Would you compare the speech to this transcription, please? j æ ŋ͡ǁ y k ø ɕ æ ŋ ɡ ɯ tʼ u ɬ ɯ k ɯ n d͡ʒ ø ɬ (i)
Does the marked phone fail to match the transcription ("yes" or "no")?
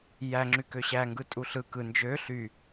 yes